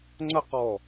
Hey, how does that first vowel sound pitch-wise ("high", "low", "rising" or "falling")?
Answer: falling